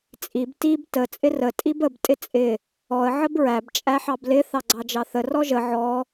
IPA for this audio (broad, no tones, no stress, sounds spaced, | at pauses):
t͡sʼ i b t i b t ə t͡sʼ ɪ r ə tʼ i b ə b tʼ ɪ t͡sʼ ɪ | ɔ ə̯ ʕ ə b ɹ æ b t͡ʃʼ æ ħ ɑ b l ɪ θ ɑ ɡ͡ǀ ɑ d͡ʒ ɑ θ ə r ɔ ʒ ə ʕ ɔ